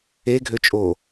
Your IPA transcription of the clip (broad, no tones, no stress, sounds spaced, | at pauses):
e ɡʱ ø t͡ʃʼ o